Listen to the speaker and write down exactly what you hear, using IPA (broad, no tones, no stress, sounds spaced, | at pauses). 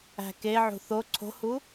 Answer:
æ̤ k e ʕ ṳ θ o ǀʰ o̤ h u